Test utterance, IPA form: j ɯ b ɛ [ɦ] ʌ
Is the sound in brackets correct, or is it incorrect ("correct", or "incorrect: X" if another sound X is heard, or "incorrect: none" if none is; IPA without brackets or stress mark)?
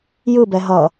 correct